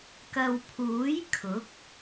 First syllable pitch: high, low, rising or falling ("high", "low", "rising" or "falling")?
low